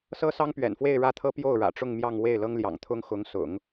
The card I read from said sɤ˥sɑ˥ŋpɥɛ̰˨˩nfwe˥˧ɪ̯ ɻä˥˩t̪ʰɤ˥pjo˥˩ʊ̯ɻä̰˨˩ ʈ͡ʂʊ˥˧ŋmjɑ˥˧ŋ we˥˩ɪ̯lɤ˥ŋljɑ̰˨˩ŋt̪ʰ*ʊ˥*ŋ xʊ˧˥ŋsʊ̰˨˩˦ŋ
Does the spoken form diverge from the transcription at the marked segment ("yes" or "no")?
no